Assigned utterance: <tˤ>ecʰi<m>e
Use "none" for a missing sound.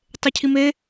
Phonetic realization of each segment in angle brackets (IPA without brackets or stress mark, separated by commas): tˤ, m